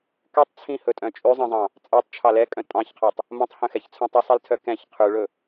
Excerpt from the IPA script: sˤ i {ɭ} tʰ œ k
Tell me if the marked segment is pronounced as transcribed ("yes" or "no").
no